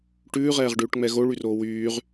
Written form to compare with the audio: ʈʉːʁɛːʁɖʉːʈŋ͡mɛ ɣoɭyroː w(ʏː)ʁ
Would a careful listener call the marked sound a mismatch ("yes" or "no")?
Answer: yes